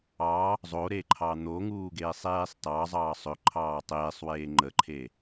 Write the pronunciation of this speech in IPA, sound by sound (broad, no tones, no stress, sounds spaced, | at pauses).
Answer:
ɑ | zˤ o ɾ e ǃʰ ɑ n̪ o ŋ uː ɡ eː sˤ eː sˤ t ɑ zˤ ɑː sˤ ɵ ǃʰ ɑː tˤ eː sˤ w eː ŋ͡ǃ ə ǃʰ e